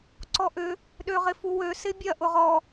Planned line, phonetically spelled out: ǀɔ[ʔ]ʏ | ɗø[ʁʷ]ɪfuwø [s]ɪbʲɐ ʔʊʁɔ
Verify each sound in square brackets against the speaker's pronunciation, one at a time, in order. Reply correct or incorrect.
correct, incorrect, correct

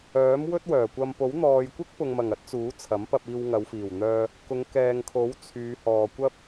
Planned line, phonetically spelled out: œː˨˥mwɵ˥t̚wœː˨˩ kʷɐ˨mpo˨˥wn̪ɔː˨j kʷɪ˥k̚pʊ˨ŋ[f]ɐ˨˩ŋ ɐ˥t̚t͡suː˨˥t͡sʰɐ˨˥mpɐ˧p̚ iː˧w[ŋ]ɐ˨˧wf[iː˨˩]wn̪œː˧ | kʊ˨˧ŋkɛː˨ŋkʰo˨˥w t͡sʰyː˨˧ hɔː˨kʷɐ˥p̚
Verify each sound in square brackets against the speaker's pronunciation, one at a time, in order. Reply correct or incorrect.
incorrect, correct, correct

